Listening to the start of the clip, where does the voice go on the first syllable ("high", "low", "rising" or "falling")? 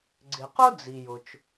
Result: low